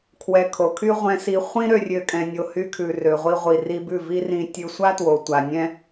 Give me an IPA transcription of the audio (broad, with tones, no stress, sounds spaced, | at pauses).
kʰ w ɛ˧ kʰ o˨ kʰ y˦ ʁʷ ɛ̃˧ s i˧ χʷ ĩ˦ ɾ ø˦ rʲ ø˦ kʼ ɛ̃˧ nʲ o˧ h y˧ kʰ ʉ˨ r ø˨ ʁʷ i˧ ʁʷ i˨ r i˧ b ʉ˦˨ v i˦ r ĩ˧ tʲ ʉ˧ sʷ a˦ t w o˨ tʷ a˨ nʲ ɛ̃˦